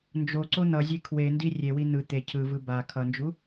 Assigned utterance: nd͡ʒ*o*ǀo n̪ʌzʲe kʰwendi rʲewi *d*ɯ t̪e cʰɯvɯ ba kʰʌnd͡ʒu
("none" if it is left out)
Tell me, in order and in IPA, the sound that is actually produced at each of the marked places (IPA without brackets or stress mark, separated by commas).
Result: o, n̪